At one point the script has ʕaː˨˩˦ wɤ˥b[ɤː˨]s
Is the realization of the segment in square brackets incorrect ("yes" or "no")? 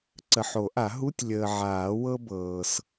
no